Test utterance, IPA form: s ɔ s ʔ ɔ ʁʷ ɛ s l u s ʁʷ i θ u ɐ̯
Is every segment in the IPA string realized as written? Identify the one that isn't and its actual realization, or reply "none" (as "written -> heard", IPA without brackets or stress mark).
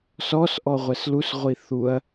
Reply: none